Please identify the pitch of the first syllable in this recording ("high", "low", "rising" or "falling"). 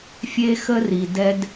high